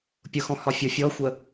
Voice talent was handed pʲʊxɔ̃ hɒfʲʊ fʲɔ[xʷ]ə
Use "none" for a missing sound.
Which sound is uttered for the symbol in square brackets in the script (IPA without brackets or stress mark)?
xʷ